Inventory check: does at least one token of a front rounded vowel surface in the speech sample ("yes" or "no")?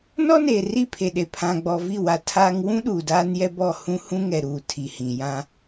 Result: no